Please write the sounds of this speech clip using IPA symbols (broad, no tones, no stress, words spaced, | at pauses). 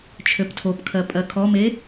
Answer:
t͡ʃʰøptʰopkʰɜ pʼɜkʰɔme